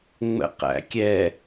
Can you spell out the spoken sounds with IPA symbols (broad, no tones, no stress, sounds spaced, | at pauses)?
ŋ͡m ə̰ q æ̰ kʲ ɛ